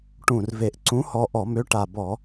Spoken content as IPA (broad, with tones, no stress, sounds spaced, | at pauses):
ʈ ũ˨˩ r v e˨˩ ʔ ǀ ũ˨˥ h ɔ˧ ʔ ɔ˧˩˧ m ø˨˥ ʈ a˨˩ b ɔ˧˩˧